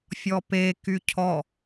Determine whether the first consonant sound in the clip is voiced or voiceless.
voiceless